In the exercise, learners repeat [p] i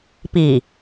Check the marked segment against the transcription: correct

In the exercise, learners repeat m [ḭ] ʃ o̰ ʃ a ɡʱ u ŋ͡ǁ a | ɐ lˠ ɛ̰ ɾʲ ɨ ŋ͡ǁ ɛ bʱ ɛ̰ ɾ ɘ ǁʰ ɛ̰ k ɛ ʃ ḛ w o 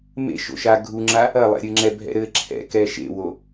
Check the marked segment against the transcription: incorrect: ḛ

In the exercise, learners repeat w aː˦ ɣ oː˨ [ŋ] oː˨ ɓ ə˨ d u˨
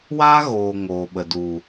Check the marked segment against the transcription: correct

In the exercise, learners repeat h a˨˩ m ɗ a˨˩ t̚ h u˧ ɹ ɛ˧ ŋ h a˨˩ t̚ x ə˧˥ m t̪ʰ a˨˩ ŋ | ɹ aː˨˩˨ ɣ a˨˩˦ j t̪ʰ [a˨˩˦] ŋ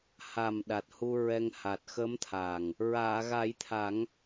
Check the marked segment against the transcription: correct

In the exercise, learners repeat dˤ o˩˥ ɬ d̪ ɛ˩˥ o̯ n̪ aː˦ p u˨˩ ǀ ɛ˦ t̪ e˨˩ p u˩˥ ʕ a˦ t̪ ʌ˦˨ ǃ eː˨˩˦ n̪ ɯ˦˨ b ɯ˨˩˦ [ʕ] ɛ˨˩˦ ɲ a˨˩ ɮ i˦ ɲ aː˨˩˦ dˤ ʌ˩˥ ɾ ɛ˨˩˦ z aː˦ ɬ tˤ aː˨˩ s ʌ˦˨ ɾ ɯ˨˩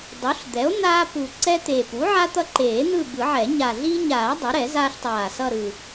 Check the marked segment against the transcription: correct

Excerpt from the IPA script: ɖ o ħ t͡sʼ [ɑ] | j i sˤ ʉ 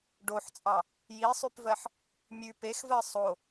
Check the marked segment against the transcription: correct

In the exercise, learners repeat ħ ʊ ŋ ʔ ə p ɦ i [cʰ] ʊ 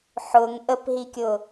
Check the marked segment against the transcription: incorrect: kʲ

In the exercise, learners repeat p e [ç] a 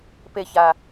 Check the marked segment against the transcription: correct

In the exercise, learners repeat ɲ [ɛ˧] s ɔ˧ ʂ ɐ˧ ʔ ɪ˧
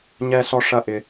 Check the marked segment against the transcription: correct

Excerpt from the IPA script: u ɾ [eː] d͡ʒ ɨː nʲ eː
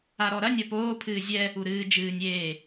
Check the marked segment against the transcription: incorrect: ɨː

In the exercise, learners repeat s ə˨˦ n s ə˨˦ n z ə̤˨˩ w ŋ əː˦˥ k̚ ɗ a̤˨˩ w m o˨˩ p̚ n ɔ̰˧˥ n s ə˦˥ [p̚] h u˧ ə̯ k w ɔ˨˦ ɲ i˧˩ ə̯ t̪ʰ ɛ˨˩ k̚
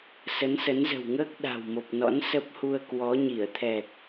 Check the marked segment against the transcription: correct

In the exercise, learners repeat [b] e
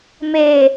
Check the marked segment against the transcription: incorrect: m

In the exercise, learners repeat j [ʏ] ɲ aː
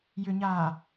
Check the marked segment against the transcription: correct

